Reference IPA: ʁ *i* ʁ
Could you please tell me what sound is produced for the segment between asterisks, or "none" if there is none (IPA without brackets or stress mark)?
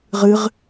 ɨ